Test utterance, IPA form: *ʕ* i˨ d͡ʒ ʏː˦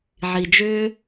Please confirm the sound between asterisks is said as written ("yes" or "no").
yes